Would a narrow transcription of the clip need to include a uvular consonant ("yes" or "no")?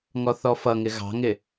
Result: no